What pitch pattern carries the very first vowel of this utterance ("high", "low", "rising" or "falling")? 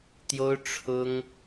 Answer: high